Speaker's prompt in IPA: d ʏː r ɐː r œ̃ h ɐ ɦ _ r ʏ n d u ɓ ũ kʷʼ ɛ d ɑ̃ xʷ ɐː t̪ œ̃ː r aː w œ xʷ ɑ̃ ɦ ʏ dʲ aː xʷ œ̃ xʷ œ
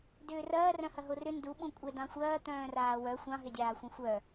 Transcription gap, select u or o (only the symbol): o